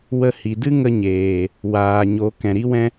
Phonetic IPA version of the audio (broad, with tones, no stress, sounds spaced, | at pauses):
w ə˧ h i˨ d ɨ˦ ŋ ə˦ ɲ eː˨ | w aː˨ ɲ o˨˦ k ɛ̃˨ ɾ i˦ w ɛ̃˦